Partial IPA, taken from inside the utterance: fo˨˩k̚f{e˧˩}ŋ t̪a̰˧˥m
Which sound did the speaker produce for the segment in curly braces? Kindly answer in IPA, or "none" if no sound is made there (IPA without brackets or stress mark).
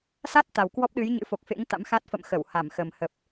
ḛ˧˥